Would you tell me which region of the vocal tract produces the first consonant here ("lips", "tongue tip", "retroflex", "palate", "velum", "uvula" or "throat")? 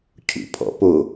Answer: palate